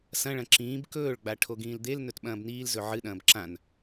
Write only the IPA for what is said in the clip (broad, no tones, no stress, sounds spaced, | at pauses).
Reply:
s ɐ̃ ɭ ɐ̃ ǁ ĩː b k ɵː ɭ ɡ͡b a ʈʰ o ɡ ĩː l d̪ e l n ɵ t ɓ ɐ̃ː b n iː l z ɵ ʕ ɨ ɗ ɐ̃ː b ǁ ã n